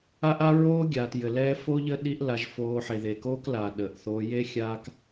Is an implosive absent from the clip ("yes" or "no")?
no